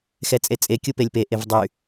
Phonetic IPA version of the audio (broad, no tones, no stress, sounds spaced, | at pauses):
x ɛ t͡sʼ e t͡sʼ e kʲ u p e lʲ p e ʔ e v dˤ y